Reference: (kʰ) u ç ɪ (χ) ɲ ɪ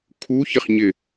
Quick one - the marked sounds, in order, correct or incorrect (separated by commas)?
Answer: correct, correct